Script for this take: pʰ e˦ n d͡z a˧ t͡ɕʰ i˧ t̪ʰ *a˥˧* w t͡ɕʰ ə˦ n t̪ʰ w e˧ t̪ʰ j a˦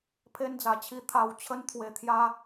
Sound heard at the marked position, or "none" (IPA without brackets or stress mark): a˥˧